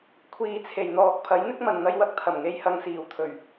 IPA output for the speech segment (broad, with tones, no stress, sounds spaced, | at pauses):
kʷʰ iː˨ t͡sʰ e˨˩ j n̪ ɔː˨ k̚ pʰ ɐ˨˥ j n̪ ɪ˥ k̚ m ɐ˨ n n̪ ɐ˧ j w ɐ˥ k̚ t̪ʰ ɐ˨˩ m ŋ e˨ j h ɐ˨ ŋ s iː˨˩ w t̪ʰ ɵ˨˩ ɥ